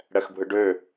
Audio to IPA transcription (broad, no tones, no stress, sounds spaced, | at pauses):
ɽ ɛ x bʱ ɯ ɖ ø